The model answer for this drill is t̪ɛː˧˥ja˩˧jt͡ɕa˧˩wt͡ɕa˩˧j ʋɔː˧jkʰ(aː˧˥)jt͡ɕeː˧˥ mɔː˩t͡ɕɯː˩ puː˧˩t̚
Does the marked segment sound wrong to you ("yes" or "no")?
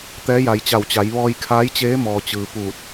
no